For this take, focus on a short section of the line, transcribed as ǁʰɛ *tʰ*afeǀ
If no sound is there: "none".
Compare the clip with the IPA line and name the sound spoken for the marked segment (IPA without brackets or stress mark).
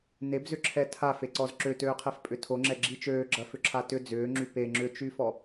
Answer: tʰ